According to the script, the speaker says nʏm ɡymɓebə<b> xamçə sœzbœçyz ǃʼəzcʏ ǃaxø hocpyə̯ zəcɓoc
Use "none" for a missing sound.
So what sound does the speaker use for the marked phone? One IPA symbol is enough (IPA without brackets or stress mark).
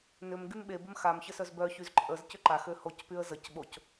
m